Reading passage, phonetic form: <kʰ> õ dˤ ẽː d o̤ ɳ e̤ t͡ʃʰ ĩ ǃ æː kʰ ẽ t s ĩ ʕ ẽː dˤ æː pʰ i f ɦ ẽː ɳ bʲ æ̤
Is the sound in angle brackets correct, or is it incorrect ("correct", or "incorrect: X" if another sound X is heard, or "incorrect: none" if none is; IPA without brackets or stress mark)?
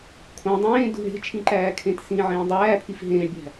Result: correct